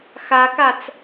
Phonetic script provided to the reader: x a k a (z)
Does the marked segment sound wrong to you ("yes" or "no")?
yes